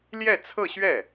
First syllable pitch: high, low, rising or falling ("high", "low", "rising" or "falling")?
falling